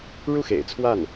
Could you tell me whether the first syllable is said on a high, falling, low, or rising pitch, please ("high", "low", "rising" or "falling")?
falling